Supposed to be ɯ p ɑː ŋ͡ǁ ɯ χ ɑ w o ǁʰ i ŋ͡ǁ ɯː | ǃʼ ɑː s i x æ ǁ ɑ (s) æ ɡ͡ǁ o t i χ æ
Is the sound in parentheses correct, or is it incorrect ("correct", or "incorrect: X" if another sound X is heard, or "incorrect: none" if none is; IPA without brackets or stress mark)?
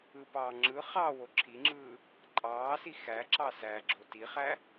correct